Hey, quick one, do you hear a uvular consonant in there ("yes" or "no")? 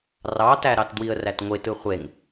yes